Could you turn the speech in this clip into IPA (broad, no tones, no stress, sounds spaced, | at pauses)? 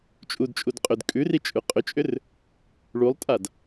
t͡ʃʼ u d t͡ʃʼ u d qʼ ʏ d kʼ ʉ r i t͡ʃʼ ʉ qʼ ʏ t͡ʃʼ ʏ r | ɭ u lˠ tʼ a d